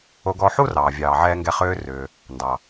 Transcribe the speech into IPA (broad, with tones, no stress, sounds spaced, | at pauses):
o˧ ɡ ɔ˧ ħ u˥ r ɑː˩ vʲ ɑː˩ ʕ ɛː˧ ŋ ɡ ɛ˧ χ ʏː˧ r ʏː˩ | n d ɑ˩